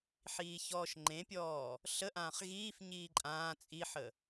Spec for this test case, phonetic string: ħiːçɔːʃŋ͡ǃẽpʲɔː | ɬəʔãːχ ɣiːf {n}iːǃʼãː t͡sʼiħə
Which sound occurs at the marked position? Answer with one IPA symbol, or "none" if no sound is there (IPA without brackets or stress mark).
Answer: ɲ